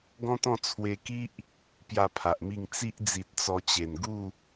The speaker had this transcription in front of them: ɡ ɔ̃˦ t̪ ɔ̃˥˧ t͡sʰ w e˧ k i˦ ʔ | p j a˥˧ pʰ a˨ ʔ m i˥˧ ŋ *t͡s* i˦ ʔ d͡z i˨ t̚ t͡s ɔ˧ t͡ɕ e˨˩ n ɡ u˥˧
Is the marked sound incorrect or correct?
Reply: correct